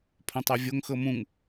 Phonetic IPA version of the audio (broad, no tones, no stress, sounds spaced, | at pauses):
pʰ õ tˤ ɤ vʲ o ŋ x ɤ m ũ ŋ